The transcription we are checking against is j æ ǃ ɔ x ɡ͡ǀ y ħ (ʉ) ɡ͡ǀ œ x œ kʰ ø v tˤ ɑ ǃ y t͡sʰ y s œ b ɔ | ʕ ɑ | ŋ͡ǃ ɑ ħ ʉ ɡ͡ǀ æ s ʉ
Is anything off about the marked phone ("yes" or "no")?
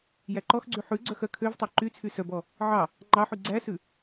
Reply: no